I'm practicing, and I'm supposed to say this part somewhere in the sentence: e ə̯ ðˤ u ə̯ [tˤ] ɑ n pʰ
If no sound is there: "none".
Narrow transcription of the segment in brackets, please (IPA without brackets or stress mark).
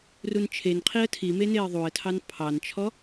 tʰ